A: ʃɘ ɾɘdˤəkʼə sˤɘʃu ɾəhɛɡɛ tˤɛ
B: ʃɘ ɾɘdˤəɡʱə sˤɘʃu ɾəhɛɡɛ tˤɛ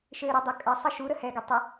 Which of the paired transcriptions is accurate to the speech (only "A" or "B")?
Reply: A